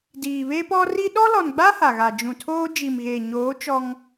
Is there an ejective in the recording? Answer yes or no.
no